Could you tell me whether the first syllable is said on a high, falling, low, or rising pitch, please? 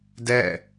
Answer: falling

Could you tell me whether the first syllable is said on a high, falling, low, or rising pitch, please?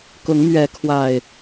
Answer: rising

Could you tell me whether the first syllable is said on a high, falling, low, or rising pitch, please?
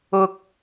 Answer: low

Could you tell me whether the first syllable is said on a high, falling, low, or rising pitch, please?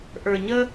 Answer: low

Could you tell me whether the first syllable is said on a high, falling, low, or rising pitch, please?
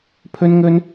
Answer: high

